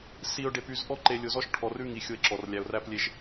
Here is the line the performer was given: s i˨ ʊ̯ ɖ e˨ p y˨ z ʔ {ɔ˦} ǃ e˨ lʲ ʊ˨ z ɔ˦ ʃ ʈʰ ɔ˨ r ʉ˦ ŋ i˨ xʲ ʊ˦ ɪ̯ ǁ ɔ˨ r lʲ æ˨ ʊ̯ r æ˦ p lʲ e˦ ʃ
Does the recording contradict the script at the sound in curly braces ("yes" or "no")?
no